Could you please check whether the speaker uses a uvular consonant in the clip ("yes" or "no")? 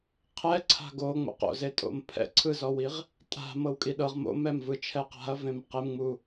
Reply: yes